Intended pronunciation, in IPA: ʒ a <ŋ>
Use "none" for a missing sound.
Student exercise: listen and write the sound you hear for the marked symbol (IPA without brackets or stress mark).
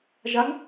ŋ